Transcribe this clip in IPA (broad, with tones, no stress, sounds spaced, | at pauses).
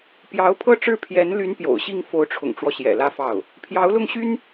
p j ɑ˧˥ ʊ̯ pʰ ɤ˥˧ ʈ͡ʂ ɻ̩˥˩ pʰ j ɛ˧˥ n l y˧˥ n p j o̰˨˩ ʊ̯ ɕ i˥˩ ŋ f o˧˥ ʊ̯ ʈ͡ʂʰ ʊ̰˨˩ ŋ ʈ͡ʂ w ɔ˦ ɕ j ɛ̰˨˩ l ä˥˧ f ɑ˥˩ ʊ̯ | pʰ j ɑ˧˥ ʊ̯ l ʊ˥˩ ŋ ɕ y˥ n